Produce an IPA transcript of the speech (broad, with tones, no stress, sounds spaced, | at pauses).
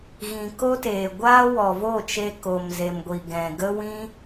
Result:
ɣ ĩ˨ k o˦ t eː˨ ɡʷ aː˦ w ɔ˨ v o˦˨ t͡ʃ e˧ k o˨ m z e˨ m ɡʷ i˨ ɡ ɛ̃˨ ɡ ə˦ w ĩ˦